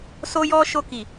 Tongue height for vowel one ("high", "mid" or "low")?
mid